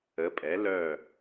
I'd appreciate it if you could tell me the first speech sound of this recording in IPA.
ə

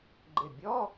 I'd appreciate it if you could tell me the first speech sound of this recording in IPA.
ɡ͡ǃ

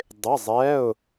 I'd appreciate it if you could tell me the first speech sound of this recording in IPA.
dˤ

